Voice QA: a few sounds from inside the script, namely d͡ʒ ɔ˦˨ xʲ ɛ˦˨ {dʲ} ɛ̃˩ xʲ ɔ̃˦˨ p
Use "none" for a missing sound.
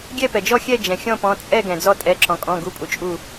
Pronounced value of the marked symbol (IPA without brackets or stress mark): d͡ʒ